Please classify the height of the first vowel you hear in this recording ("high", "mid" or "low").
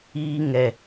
high